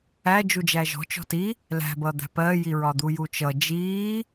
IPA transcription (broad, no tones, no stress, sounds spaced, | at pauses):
æ d͡ʒ u d͡ʒ æ ʒ ɔ̤ t͡ʃ ɔ̤ t i | l æ̤ b ʌ d̪ æ̤ p ɜː j i ɹ ɒ d̪ u j u t͡ʃ ʌ d͡ʒ iː